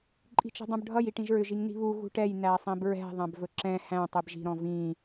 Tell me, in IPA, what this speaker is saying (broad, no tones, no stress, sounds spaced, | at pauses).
ǃʼ i̤ t͡ʃ i̤ dˤ ũ b ɖʱ ʌ j i ʈ ĩ ʒ ɹ ʏ ʒ i ŋ n i̤ β u ɣ ṳ ʈ ɛ j n æ sˤ ĩ b ɹ ɛ̤ ðˤ æ̃ b v ɵ ǁ ɛ̃ h æ̃ tˤ i b ʒ i̤ ɾ ɔ̃ v ĩ